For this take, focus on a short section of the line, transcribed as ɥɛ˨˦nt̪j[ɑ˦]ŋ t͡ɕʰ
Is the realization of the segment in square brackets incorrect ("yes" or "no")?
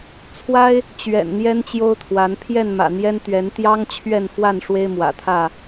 no